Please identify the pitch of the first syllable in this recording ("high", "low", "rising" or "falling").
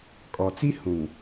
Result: low